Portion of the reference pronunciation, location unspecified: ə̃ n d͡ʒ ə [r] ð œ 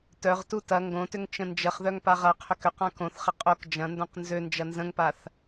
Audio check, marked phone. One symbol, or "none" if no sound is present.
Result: χ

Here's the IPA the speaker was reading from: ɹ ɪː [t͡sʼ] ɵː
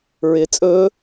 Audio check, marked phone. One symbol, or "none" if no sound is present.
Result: t͡sʼ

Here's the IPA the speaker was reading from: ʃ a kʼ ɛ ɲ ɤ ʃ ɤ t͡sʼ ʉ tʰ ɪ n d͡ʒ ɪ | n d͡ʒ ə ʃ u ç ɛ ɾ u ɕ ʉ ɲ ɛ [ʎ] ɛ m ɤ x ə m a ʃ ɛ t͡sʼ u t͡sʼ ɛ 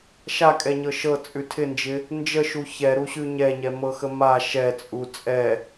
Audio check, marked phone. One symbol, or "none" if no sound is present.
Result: ɲ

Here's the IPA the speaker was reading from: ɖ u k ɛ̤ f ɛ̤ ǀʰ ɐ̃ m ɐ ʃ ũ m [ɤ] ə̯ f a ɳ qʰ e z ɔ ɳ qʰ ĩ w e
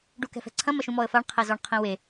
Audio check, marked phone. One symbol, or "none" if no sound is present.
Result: ɔ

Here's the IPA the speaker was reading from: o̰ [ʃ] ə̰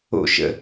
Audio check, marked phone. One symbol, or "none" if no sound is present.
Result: ʃ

